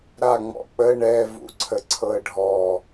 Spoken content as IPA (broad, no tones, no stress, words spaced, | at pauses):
ɾa ŋ͡mɔ̰k͡pə ɳɛ vṵǀʰəǀʰɤə̯ɖʱɔ